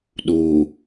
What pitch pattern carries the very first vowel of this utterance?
low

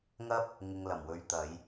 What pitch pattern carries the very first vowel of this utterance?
high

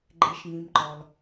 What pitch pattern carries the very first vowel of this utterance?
low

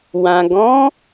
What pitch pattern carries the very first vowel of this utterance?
low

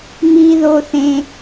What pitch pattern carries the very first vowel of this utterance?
high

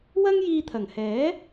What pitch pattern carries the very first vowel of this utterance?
high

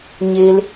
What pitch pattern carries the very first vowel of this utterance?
high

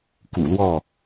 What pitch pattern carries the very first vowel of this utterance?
low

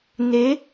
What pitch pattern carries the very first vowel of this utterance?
rising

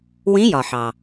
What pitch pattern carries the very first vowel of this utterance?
rising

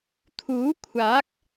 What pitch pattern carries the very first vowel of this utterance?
rising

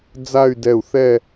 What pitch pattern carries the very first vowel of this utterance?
falling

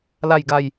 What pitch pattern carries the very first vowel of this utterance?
low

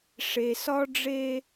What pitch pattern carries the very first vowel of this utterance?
low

